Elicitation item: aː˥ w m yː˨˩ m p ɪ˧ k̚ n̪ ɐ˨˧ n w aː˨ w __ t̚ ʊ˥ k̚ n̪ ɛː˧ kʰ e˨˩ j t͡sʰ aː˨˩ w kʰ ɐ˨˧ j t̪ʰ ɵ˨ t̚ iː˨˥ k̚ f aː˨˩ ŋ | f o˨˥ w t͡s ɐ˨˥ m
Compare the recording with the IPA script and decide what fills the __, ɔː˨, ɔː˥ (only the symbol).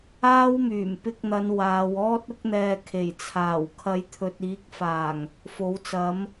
ɔː˥